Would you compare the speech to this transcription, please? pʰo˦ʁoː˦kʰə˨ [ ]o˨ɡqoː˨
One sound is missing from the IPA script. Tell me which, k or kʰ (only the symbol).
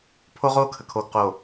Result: kʰ